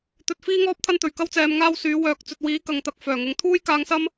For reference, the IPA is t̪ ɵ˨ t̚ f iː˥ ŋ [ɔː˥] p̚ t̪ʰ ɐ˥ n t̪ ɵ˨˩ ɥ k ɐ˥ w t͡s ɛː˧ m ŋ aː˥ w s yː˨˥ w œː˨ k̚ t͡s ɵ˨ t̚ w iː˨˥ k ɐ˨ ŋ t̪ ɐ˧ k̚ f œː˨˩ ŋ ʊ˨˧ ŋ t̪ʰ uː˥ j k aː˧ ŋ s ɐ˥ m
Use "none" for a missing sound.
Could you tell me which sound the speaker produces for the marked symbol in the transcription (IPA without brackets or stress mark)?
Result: ɔː˥